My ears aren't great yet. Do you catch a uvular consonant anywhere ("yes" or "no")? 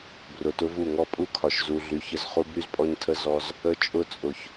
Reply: yes